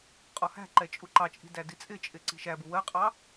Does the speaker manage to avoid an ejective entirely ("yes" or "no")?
no